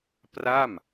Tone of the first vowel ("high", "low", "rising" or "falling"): falling